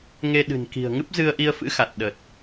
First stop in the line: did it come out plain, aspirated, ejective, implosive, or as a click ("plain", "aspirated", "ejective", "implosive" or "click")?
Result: implosive